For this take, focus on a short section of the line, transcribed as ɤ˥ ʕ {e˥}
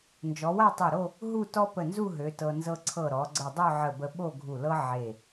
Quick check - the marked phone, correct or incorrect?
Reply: incorrect: e˧˩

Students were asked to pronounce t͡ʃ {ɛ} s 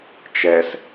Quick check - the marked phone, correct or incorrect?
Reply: correct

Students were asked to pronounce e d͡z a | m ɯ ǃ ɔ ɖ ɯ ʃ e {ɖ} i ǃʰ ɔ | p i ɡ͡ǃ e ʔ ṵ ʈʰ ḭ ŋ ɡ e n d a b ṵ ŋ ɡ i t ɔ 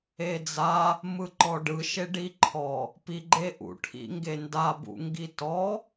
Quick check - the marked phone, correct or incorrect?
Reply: correct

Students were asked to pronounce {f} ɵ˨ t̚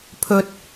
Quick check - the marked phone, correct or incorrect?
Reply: incorrect: pʰ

